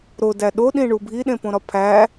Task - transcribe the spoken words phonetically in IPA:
ɾodæ ɗoɗĩɳu bʱiɗẽpõɾɒ pʰæ

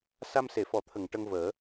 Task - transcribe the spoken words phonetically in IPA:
sa˧mse˨˩˨fɔ˨˩˦t̪ʰə˨˩˨ŋ ʈə˧ŋvəː˨˩˦

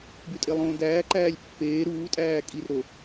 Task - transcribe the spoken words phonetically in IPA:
bytʼelˠõːdæː ǃæːlʲpːeː ɾuːtʼæː kʼir ɾo

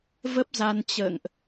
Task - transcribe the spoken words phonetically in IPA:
və˦˥p̚za˧n t͡ɕə̰ː˧˨ŋʔ

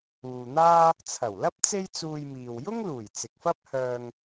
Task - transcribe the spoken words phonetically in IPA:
uː˨n̪aː˥ | t͡sʰɐ˨˩wlɐ˥p̚ t͡se˥jt͡suː˧jmiː˨w jʊ˥ŋluː˨˩j t͡sɪ˨k̚fɐ˥p̚hœː˧ŋ

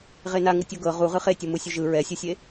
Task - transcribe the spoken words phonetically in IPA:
ʁena ŋɯtʲɤɡɤ ʁuʁɯ χetʲɤ mɯsʲuʒɯ ɹɛsʲɯsʲe

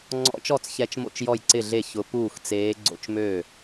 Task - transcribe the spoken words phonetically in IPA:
ŋ͡ǀɔ̰˧˥t͡ʃɔ˥˩t͡s çɛ˧˥t͡ʃmo̰˥˩t͡ʃ jɔ˥˩jǀɪ˥˩ɮe˥˩ çʊ˧˥ puː˥˩xt͡seː˧˥ ɡ͡ǀo̰˥˩t͡ʃmø˥˩

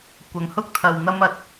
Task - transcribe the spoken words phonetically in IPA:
kʷɐ˨˥ŋhʊ˥k̚ t̪ʰɐ˨w n̪ɐ˥m ɐ˨t̚

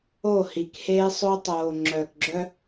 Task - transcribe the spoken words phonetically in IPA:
o˦˨hi˨kheː˦ sˤo˦ tˤoː˨ ŋ͡ǁœː˨kɡ͡ǁœ˦

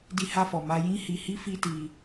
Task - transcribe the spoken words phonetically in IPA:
di˧ha˧fɔ˨ ma˧jĩ˦hi˧hi˦ fi˦ti˧

